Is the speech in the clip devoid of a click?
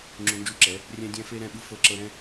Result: no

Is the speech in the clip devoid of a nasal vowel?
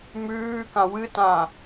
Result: no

